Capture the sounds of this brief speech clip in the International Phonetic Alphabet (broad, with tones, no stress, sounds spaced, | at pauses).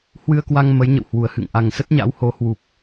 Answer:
h w ɨ˧ ə̯ k w a˧ ŋ m ə˨˦ j ɲ ə̰˧˨ w h w u˨˩ ə̯ h ɨ̰˧˨ ŋ ʔ a˨˩ ŋ s ə˦˥ t̚ ɲ a̰˧˥ w h o˨˦ h w u˨˩ p̚